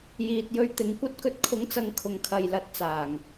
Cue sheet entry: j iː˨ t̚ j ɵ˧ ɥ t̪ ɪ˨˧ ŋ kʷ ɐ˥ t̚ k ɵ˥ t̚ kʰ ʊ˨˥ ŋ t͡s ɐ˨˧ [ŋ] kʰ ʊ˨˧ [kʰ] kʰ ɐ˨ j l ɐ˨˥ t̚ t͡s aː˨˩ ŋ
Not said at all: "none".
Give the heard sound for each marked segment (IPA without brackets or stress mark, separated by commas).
ŋ, ŋ